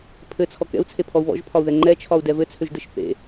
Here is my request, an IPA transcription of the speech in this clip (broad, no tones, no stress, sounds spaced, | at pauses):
pʰ ɘ t͡sʰ ɔ k ɛ̰ u̯ t͡sʰ e pʰ ɔ u̯ β ɔ̰ ʒ pʰ ɒ u̯ ð ɛ ŋ͡ǃ ɛ t͡ʃʰ ɒ u̯ d ɛ v ɘ t͡sʰ ø ʒ d ɘ ʃ θ ḛ